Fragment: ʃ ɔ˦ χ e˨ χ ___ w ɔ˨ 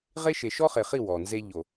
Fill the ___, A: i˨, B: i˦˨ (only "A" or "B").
B